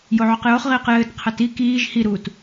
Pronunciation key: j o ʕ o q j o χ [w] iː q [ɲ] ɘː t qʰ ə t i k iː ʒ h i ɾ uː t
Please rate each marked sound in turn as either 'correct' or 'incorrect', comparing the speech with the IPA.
incorrect: ʁ, incorrect: j

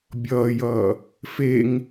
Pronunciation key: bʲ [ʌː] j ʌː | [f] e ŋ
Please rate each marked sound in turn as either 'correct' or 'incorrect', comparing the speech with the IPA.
correct, correct

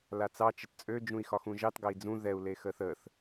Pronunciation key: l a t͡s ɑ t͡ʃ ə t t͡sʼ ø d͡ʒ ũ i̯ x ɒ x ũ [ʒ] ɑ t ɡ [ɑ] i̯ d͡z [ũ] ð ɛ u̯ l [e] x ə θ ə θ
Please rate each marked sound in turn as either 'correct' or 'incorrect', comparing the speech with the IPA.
correct, correct, correct, correct

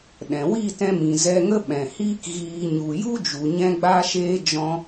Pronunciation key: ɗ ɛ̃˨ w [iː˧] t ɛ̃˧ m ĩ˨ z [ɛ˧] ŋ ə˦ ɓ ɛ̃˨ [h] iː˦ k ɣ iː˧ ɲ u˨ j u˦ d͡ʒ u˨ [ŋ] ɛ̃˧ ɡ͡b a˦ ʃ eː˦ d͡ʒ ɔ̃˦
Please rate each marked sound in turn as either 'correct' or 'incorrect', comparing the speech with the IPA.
incorrect: iː˦˨, correct, correct, incorrect: ɲ

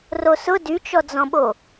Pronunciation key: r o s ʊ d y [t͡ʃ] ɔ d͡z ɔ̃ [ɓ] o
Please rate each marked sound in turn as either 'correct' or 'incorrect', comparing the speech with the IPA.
correct, correct

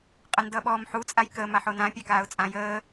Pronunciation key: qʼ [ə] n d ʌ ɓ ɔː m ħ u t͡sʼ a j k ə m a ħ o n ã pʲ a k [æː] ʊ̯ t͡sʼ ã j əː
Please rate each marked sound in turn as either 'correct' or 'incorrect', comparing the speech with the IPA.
correct, incorrect: aː

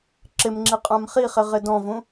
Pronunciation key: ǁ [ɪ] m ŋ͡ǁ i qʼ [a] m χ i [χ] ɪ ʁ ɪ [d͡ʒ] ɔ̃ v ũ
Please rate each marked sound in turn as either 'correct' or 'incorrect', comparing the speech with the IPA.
correct, incorrect: ã, correct, incorrect: d

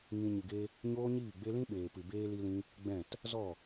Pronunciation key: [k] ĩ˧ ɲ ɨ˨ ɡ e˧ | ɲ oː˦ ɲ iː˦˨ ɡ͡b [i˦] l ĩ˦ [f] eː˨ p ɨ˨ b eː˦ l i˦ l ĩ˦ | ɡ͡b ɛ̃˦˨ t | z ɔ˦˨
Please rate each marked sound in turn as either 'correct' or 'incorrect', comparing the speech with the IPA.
incorrect: ŋ, incorrect: e˦, incorrect: ɓ

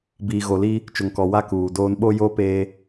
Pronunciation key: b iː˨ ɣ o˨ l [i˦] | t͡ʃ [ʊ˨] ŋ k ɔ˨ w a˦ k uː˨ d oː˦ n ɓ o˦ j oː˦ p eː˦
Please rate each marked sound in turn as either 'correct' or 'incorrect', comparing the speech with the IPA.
correct, correct

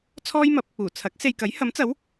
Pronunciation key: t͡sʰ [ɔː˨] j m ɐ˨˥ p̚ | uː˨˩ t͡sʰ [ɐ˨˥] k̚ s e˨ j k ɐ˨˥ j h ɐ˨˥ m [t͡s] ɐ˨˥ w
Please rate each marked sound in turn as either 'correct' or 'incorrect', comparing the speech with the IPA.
incorrect: ɔː˥, correct, correct

